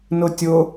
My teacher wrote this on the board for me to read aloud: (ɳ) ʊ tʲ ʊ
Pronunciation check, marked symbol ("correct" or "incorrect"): incorrect